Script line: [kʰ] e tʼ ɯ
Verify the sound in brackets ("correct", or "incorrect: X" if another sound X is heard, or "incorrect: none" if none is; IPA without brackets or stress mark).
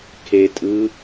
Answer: correct